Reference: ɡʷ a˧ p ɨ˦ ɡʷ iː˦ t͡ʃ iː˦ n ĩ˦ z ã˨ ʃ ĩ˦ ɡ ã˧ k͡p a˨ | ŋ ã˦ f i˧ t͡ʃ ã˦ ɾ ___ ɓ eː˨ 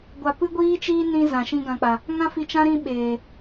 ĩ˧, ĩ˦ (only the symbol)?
ĩ˦